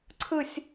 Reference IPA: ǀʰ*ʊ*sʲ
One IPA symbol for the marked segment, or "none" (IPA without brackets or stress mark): ɯ